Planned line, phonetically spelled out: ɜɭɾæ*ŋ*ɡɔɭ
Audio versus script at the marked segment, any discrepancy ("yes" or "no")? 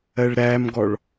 yes